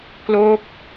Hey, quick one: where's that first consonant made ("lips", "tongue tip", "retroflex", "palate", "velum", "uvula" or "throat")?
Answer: velum